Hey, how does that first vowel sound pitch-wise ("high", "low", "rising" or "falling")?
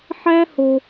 high